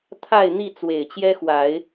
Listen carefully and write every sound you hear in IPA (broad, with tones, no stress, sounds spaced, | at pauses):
t̪ʰ a˥˨ ɪ̯ n̪ i˥˨ t͡s w e˨˩ ɪ̯ t͡ɕ j ɛ˦ x w a˨˦ ɪ̯